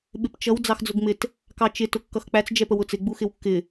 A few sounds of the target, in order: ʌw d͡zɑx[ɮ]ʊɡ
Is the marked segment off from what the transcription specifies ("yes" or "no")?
yes